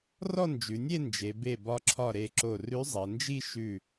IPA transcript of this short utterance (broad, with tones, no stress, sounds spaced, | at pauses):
r ɔ˥˧ n d͡ʒ ʉ˩˧ nʲ e˥˧ n d͡ʒ e˩˧ b e˧˩ b ɒ˧ ǁʰ ɒ˧˩ ɾ e˧˩ ǁ o˧˩ r ʉ˧˥ zˤ ɐ˩˧ n d͡ʒ i˥˧ ʃ ʉ˧˩